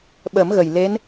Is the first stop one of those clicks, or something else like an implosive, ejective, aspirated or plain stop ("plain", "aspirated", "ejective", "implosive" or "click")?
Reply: implosive